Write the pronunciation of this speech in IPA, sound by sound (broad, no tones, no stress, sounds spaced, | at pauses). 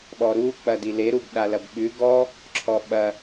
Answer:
ɓ ɔ ɾ u k͡p ɐ d i l e ɾ u b ɗ a l ɐ b ɓ ʉ ɡ ɔ | ǁʰ ɔ ɓ ɐ